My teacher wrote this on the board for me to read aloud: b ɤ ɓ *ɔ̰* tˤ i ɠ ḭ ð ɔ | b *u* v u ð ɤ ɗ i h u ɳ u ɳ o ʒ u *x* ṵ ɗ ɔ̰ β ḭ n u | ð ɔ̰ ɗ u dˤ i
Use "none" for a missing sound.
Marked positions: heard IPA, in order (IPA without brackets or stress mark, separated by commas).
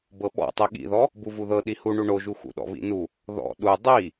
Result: ɔ̰, u, x